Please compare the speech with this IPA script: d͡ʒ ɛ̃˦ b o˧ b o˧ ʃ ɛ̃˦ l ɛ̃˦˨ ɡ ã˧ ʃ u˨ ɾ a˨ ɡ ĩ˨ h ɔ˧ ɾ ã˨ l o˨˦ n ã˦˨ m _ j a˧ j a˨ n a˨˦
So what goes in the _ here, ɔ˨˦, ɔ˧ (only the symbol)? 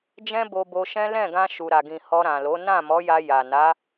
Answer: ɔ˨˦